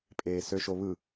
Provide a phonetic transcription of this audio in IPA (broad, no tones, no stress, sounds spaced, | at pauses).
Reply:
pʼ eː s ø ʃ o β ɯ